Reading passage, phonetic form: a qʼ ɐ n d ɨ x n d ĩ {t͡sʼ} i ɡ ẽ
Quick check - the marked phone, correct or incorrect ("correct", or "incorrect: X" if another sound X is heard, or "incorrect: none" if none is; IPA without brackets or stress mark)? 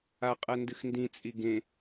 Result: correct